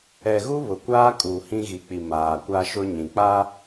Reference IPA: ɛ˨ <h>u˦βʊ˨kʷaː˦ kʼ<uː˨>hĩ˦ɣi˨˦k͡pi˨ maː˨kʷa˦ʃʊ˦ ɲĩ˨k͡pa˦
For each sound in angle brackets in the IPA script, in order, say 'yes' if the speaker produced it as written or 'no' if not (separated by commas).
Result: no, yes